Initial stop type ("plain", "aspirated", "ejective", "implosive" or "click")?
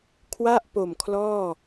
aspirated